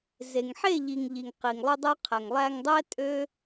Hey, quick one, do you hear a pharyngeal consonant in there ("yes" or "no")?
yes